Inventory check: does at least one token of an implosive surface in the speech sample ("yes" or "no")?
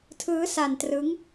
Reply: no